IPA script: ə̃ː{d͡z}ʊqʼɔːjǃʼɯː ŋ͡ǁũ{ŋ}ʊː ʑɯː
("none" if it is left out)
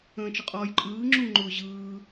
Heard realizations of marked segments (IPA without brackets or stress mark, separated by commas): t͡ʃ, ŋ͡ǃ